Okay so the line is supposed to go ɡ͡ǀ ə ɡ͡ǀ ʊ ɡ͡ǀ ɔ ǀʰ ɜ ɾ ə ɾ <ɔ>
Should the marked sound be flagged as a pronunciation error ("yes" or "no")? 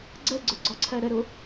yes